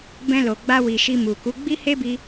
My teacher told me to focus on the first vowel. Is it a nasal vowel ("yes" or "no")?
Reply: yes